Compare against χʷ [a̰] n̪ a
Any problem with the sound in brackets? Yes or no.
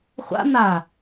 no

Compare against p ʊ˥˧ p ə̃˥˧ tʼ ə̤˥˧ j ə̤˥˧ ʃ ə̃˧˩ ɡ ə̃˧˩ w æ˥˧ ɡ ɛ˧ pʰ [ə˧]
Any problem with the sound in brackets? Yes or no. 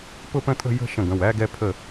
yes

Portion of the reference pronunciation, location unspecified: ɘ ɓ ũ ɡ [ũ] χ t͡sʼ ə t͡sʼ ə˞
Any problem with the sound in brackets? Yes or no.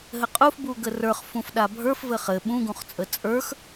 no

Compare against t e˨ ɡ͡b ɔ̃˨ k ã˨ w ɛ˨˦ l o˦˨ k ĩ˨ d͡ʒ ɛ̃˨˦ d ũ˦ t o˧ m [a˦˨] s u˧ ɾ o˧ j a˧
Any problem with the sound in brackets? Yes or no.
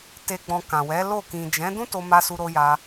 yes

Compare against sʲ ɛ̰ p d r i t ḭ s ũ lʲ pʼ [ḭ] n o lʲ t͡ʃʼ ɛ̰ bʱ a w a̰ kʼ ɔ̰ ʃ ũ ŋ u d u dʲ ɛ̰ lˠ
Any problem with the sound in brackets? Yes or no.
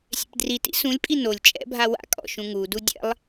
yes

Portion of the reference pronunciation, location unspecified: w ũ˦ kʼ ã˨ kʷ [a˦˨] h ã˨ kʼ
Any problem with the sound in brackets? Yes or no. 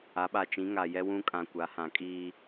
yes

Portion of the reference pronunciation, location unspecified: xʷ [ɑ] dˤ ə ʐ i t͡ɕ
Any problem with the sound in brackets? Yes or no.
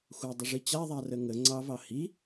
no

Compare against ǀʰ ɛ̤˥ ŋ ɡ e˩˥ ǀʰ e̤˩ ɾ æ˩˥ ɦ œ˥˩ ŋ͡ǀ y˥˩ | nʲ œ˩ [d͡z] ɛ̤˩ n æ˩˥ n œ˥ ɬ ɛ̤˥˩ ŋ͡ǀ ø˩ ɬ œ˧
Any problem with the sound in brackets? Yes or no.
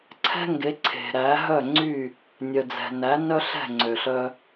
no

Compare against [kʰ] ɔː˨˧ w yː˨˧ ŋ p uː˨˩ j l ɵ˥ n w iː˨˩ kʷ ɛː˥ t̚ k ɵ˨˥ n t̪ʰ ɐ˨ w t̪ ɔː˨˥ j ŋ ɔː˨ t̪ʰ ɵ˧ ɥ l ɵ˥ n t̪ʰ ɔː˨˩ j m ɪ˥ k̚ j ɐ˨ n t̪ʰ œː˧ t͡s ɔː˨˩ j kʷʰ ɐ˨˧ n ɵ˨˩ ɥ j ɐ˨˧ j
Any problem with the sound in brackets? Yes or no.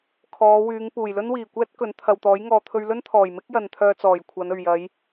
no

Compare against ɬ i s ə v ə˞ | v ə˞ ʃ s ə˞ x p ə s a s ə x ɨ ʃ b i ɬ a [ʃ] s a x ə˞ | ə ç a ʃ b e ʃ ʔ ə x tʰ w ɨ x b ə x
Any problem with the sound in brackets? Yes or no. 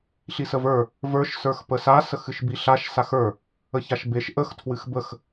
no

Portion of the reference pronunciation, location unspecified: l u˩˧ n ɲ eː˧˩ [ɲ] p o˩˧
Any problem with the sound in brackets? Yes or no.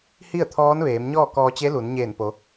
yes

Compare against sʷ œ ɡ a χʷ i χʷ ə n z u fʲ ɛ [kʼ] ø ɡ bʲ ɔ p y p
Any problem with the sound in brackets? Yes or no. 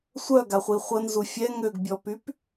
yes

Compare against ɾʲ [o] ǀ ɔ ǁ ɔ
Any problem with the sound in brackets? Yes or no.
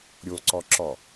no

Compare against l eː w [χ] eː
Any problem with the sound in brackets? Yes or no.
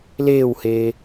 yes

